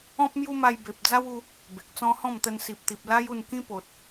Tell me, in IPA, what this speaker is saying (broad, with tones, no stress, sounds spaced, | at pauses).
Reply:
ɔ̃˦ p̚ m j u˦ m a˧ j b e˨ p̚ d͡z a˦ w u˧ | b e˨ k̚ t͡s ɔ̃˦ h ɔ̃˥˧ m t̪ ə˧ n s i˨ p̚ t̪ i˨ p̚ l a˦ j u˥˧ n k ĩ˦ p o˨ t̚